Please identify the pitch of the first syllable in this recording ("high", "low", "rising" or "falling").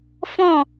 falling